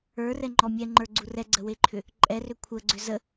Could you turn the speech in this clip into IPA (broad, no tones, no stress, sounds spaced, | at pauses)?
ə˞ r ɛ ŋ͡ǃ ɔ mʲ ɛ ŋ͡ǃ ə˞ ɡ͡ǀ u r ɛ ɡ͡ǀ ə w e ǃʰ ʏ | ǃʼ ɛ r ʏ kʷʰ ə ɡ͡ǀ ʏ z ə